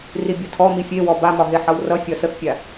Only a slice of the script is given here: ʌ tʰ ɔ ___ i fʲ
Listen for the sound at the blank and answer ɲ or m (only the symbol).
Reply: m